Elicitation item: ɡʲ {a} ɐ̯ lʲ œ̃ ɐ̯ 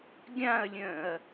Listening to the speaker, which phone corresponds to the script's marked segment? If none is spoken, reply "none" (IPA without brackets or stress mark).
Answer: ã